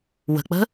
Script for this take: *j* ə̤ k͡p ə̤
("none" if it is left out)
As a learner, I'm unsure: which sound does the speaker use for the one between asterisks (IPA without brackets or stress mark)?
w